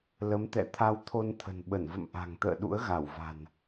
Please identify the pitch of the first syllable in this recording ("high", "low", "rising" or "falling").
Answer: rising